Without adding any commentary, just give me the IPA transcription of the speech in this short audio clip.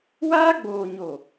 waː˦ɡ͡boː˨ɲo˨

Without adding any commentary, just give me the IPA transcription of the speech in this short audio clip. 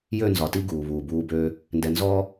jø˦˨nzɒ˨ti˦ ɡuː˨βuː˨buː˦ bøː˦ | ndɛ˨nzɔː˦

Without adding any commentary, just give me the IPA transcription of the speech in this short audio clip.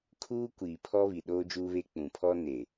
kʰuː˦kʷiː˨pʰɔ˦ βi˨ɗoː˦d͡ʒuː˦βe˦ k͡pũ˨pʰɔ˦ ne˨

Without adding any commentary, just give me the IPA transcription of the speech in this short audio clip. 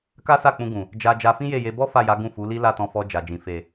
ka˦sa˦˨k͡pũ˧ ɡũ˨ | d͡ʒa˨ d͡ʒa˧fĩ˦je˦˨je˧ bɔ˦ fa˦˨ja˨˦ ɡũ˦˨fu˨˦li˦ la˦˨tɔ̃˧fɔ˧ d͡ʒa˨d͡ʒĩ˨ fe˨

